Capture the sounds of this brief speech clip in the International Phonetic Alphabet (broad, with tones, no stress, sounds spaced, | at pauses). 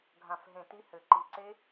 ɡʱ ã˧˩ f ɦ ẽ˧˩ t i˦˥ h ɘ˧˩ ǃ i˧˩ ǀ e˦˥